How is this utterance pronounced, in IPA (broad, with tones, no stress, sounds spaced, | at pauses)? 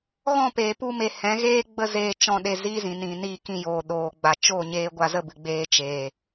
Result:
ɣ ɔ̃˦˨ p eː˨ p u˧ m e˨ h ɛ̃˨˦ ɣ eː˦ ɡ͡b ə˦ z eː˧ t͡ʃ ɔ̃˧ ɗ e˧ z iː˦ z ĩ˨ n ĩ˨ n iː˧ k ĩ˧ j oː˨ ɗ oː˨ ɡ͡b a˨ t͡ʃ o˦˨ ɲ eː˧ ɡʷ a˧ z ə˦˨ b ɨ˨ ɡ͡b eː˧ t͡ʃ eː˨